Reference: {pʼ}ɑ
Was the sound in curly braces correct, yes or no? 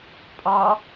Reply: yes